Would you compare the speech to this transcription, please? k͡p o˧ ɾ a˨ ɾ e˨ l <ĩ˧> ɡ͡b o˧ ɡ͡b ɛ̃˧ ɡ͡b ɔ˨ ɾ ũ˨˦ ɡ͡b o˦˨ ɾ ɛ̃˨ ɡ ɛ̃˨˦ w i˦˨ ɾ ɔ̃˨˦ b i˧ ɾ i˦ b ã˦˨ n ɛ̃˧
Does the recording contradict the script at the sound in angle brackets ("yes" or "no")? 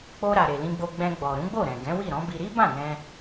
no